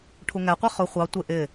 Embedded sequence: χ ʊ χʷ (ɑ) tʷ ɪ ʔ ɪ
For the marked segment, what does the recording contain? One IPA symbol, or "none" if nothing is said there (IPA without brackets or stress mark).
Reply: ɑ